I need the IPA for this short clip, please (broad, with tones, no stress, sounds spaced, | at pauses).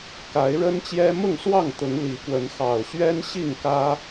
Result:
k a˨˦ ɪ̯ ɻ ə˦ n t͡ɕ j ɛ˦ m ʊ˥˨ ŋ s w ɑ˥˨ ŋ t̪ ʊ˨˦ ŋ l i˨˦ k w ə˨˦ n x ɑ˨˩ ʊ̯ ɕ ɥ ɛ˦ n ɕ i˥˨ ŋ k ä˦